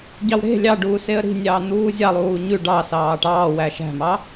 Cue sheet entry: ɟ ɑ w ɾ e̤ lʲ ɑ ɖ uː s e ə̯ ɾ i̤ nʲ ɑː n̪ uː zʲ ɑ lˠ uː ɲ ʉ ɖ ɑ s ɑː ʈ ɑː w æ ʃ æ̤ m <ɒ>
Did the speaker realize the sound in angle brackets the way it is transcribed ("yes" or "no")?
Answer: no